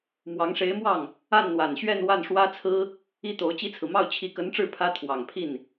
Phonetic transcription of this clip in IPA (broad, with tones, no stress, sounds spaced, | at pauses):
m w ɑ˧˥ ŋ ʂ e˧˥ ɪ̯ m w ɑ˥˩ ŋ | a˥˩ n n̪ w a˨˩ n ɕ ɥ ɛ˥˧ n w a˥˩ n ʂ w ä˥ t͡sʰ ɹ̩˥ | i˥ t̪ o˧˥ ʊ̯ t͡ɕ i˥ t͡sʰ ɹ̩˨ m ɑ˥˩ ʊ̯ t͡ɕʰ i˧˥ k ə˧˥ n ʈ͡ʂ ɻ̩˥˩ pʰ ä˥ t̪ʰ w ɑ˨˩ ŋ pʰ i˥˩ n